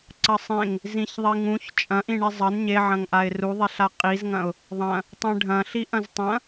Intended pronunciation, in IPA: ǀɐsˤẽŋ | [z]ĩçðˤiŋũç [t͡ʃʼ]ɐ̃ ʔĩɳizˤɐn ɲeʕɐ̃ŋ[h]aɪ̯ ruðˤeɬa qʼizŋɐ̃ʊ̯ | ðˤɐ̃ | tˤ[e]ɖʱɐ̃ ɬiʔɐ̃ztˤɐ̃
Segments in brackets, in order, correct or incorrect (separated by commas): correct, correct, incorrect, incorrect